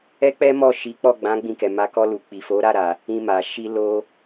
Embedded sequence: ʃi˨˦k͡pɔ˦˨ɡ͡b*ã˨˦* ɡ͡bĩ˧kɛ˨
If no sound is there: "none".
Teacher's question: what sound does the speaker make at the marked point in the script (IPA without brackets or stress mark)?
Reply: ã˨˦